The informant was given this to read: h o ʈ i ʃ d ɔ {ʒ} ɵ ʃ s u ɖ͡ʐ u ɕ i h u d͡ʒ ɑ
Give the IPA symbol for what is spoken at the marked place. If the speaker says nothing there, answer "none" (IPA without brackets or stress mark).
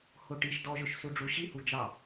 ʒ